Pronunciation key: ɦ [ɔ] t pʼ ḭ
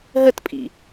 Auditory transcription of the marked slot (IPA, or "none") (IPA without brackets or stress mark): ə